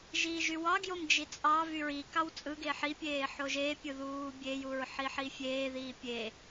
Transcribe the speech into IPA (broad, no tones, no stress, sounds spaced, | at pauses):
ʒ iː ʒ y w ɑ ɡ j o m d͡ʒ i t͡sʼ ɑ v y ɹ i k ɑ w t͡sʼ ɯ ɡ eː ħ i pʲ eː ħ o ʒ e pʲ ɯ ð uː bʲ e j u ɹ ħ i ħ i fʲ eː ð iː pʲ e